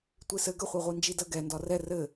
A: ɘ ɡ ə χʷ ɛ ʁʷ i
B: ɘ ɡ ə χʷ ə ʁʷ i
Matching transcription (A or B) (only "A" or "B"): A